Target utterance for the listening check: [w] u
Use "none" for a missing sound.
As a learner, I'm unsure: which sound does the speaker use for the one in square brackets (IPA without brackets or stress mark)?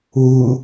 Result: w